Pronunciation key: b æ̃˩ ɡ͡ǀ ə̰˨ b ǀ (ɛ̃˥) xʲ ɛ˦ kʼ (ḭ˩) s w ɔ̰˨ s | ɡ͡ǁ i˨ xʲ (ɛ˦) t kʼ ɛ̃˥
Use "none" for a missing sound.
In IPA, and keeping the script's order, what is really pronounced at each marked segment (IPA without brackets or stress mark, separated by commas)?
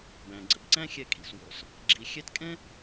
æ̃˥, ḭ˩, ɛ˦